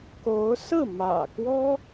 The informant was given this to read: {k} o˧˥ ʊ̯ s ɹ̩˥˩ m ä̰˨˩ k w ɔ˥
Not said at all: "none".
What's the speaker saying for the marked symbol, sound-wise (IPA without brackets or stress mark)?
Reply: k